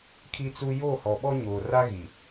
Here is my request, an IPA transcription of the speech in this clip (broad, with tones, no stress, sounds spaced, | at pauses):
kʰ i˦ t͡s u˦ j o˦˨ h ɔ˨ ɓ ɔ˦ ɲ oː˨ r a˦ ɣ i˨